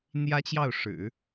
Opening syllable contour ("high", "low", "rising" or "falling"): high